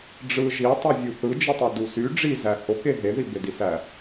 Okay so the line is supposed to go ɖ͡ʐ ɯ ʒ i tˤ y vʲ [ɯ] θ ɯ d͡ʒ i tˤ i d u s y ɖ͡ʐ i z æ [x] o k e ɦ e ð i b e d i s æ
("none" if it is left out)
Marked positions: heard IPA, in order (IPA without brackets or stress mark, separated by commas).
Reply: u, h